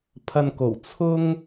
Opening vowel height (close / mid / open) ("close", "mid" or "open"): open